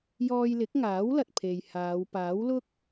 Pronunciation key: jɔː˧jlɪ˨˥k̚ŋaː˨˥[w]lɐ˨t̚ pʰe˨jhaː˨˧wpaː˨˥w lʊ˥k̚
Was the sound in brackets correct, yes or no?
yes